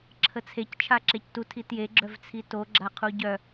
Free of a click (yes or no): no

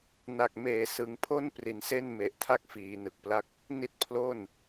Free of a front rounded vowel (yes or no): yes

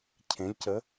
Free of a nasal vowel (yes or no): no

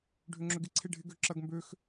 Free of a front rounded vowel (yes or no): no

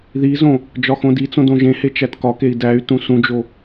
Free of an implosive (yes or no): yes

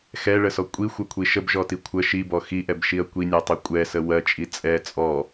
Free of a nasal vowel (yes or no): yes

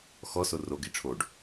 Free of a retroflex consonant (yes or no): no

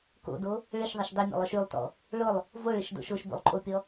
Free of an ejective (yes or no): no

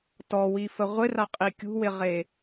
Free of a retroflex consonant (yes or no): yes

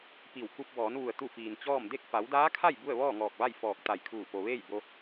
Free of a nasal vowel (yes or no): yes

